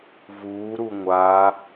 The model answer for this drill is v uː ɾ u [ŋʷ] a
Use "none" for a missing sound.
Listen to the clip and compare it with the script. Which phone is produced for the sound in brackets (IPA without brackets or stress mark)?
ŋʷ